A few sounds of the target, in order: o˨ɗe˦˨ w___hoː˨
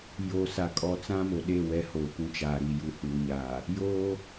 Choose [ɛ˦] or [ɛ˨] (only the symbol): ɛ˦